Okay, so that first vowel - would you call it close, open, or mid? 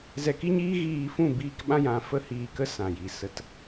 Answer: mid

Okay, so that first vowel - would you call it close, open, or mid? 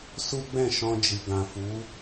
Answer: close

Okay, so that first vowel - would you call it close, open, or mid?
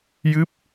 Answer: close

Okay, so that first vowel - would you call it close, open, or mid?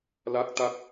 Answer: open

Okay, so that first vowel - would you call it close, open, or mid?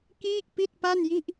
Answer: close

